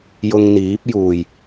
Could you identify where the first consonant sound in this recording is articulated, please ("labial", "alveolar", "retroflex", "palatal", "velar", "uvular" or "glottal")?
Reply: palatal